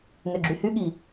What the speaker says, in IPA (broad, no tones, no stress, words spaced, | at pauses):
nøɡ͡ǁyhyɠi